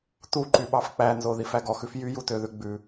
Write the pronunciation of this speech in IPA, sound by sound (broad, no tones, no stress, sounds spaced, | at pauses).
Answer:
t u ǃ y ɓ ɑ f k͡p æ n z o ð i f æ ɡ ɔ x ʉ f j y j u t ø ð ʉ ɡ͡b ʉ